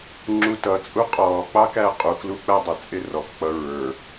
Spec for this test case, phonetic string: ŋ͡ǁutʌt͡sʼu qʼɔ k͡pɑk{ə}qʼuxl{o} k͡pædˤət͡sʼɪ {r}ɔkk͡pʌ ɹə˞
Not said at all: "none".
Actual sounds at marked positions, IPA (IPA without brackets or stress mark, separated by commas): æ, u, r